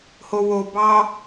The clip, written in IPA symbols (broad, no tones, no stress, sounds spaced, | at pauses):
h o w o b ɑ